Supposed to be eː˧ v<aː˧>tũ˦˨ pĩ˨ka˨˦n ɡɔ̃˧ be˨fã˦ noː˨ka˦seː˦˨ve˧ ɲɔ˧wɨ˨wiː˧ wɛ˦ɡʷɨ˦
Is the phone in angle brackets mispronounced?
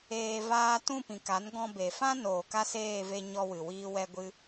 no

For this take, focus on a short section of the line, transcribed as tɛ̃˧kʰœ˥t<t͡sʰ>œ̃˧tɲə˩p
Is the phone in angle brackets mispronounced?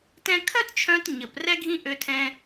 yes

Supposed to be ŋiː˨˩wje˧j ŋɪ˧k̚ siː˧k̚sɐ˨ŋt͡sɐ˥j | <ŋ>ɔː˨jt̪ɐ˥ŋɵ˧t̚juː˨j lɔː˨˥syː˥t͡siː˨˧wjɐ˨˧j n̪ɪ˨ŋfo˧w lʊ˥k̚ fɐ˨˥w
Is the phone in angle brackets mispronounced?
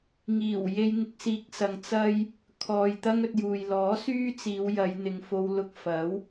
yes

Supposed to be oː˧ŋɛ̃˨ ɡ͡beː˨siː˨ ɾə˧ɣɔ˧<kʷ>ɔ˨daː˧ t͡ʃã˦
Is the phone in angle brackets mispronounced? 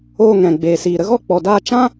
yes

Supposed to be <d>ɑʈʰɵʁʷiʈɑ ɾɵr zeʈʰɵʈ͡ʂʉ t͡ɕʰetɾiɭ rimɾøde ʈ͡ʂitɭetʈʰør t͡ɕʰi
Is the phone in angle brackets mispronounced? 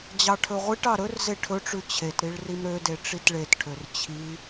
yes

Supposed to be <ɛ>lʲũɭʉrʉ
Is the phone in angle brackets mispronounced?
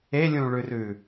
yes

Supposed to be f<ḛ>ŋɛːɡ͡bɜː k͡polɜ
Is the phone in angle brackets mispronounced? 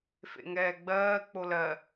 no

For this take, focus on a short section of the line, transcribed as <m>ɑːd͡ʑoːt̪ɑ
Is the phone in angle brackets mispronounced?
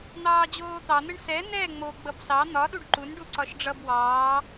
yes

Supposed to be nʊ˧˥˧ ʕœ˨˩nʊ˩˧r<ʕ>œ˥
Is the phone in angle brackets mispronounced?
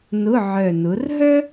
yes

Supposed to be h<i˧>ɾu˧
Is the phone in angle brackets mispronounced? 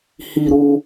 no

